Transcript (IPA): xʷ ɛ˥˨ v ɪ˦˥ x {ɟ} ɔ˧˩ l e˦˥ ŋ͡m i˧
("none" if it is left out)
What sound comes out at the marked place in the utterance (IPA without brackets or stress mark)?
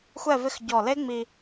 ɟ